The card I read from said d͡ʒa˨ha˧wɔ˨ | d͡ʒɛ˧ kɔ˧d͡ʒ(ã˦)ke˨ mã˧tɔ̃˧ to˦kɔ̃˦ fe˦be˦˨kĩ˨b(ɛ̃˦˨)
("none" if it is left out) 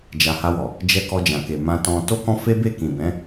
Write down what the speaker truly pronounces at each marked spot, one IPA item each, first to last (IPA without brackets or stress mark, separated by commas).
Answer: ã˨, ɛ̃˨˦